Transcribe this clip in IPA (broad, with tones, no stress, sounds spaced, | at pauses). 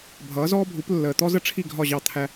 bʱ ʌː˨˦ z ɔː˦ bʱ u˨˦ p lː əː˨ t̪ ɔ˦ z ə˦ ʈ͡ʂʰ i˦˨ ɡʱ ɒ˦˨ ʑ ɑ˦˨ t̪ʰ æ˦